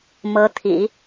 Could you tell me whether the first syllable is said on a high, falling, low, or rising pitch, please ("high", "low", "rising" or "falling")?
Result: rising